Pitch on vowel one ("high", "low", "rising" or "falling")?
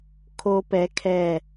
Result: high